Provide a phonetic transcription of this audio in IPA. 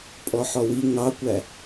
pʼɔħɔwi ŋɑkʷæ

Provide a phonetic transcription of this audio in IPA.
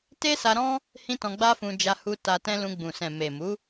te˦sa˧ɾɔ̃˦ | hĩ˦tɔ̃˧ɡ͡ba˦fũ˧ d͡ʒa˧hu˧ ta˧tɛ̃˦ lũ˧ɡ͡bũ˨ sɛ̃˨me˨mu˨˦

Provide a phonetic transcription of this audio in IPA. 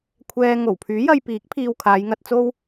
kʷʰɛː˨ ŋo˨˩wpʰyː˨˥jɐ˧jpiː˨˥k̚ pʰiː˧wkʰaː˨˧jŋɐ˧t̚t͡so˥w

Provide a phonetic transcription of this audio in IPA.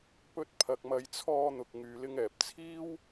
pɵ˧t̚ pʰɐ˨k̚mɐ˨˧jt͡sʰɔː˧ n̪ʊ˨k̚ŋyː˨ lɪ˧ŋɛː˨p̚ t͡sʰiː˥w

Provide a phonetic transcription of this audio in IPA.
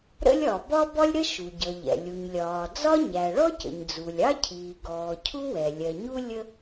ɾə̰˥lʲɒ˩ bɒ˥bɒ˥lʲɾə˥ ʃu˩ɟʌ˩ʎɛ̰˩ lʲu˩ɲlʲɒː˩ d͡zɒ˥ɲæ˩ ɭɔ˥cə̰˩ɲ d͡zu˩lʲ ɑ˥cʰiː˩ɡɔː˩ cʰu˥wɛ˩ lʲɜ˩ɲu˥ lʲə˥

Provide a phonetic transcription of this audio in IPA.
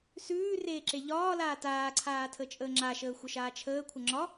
sʉː reːǁeʎɒːlaː taːǀʰaː tʰət͡ʃʼəːŋ͡ǁaʃəː xʷəʃaːt͡ʃʰəːkʷʰə ŋ͡ǁɒ

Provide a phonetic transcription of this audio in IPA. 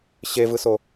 ɕevɯso

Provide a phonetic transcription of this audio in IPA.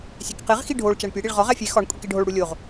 sʲekqeʁxi ɖʱoɭ t͡ʃæɳpʲeɽiɭ ʁɒʁ æfʲe xɒɳ kʷʼikeɖʱoɭɽu lʲoʁ

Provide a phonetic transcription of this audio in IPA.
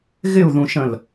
ɣɪu̯ðũʃə̃l

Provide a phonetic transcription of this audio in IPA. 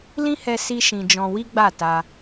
lĩ˦hɛ˧ si˦ʃĩ˧d͡ʒɔ̃˧ wi˦ɡ͡ba˦˨ta˧

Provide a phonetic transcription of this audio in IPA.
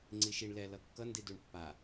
ŋ͡ǀiʃiɳ lɛ lʌkːʌ ndiduɳpːa

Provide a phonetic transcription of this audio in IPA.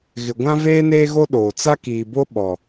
ɣɪ˨ɡʷã˦veː˦ neː˦ɣo˦ɗoː˨ t͡sa˦kiː˨bo˦ ɓɔ˨

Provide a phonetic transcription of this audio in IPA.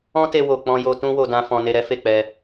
ɔ̃˦te˧wo˨ k͡pɔ̃˧jo˧ tũ˦wo˧dã˧ fɔ̃˧ne˧ɾɛ˦ fe˦˨k͡pɛ˧

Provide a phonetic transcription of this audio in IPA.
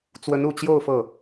t͡swə˧˥nu˨˩t͡ɕjo˥˧ʊ̯ fɤ˥˩

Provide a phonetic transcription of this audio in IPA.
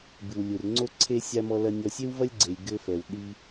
bɨ˩wlʲu˩r ŋ͡ǀo˦ǀʰe˦sʲa˦ mɔ˦lɐ˦ nʲɔ˦ sʲe˥wvɐ˥lʲ ɡ͡ǀe˨lʲ ɡɘ˦fɛ˨w ɗi˦

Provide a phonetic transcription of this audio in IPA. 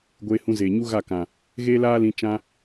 ɡʷeː˧hũ˧zeː˨ɲu˦ ɣa˦˨kã˨ | ɣeː˦laː˦lĩ˧ t͡ʃã˧

